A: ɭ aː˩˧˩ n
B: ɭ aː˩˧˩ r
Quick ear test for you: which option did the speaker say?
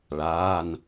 A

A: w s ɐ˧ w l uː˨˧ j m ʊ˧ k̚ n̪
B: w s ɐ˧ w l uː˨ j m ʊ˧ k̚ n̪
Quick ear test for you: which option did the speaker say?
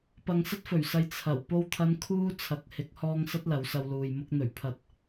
B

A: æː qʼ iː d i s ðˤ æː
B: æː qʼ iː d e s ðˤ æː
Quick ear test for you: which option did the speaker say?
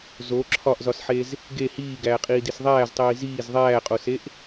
A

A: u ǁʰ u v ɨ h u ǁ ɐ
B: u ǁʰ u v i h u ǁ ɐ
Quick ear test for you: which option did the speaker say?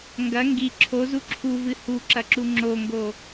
A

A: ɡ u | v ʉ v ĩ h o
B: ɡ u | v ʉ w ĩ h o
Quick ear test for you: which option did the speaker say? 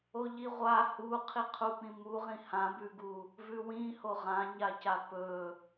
B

